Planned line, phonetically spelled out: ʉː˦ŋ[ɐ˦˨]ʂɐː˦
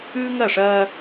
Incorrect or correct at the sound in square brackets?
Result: correct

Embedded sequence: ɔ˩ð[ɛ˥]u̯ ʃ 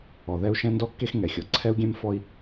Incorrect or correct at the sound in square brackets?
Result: correct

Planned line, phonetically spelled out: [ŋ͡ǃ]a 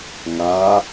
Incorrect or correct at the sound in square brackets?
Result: incorrect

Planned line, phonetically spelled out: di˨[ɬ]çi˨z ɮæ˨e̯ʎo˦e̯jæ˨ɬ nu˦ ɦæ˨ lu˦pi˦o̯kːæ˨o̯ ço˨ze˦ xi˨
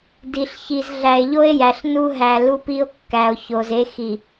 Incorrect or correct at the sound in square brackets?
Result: correct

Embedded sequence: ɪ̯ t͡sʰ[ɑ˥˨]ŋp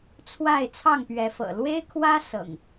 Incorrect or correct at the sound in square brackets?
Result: correct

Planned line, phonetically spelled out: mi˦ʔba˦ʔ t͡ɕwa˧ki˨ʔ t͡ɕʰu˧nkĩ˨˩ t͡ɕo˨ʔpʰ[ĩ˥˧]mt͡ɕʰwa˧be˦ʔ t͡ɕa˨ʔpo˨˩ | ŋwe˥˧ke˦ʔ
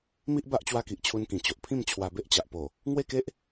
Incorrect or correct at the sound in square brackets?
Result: correct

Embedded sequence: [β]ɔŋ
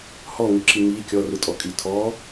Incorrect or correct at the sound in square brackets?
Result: incorrect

